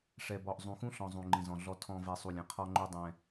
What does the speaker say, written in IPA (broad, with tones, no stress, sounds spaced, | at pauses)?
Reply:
ʂ ɛ˨ b ɔ˨ ʔ zˤ ũ˨ x ũ˦ ɬ ɔ̃˨ zˤ ũ˨ ŋ͡ǃ ĩ˨ z ɔ̃˨ ɮ ɔ˨ tʰ ɔ̃˨ v ɛ˨ sˤ u˨ lʲ ɛ̃˨ qʰ ɔ˦ ŋ͡ǃ u˦ dˤ ɛ̃˦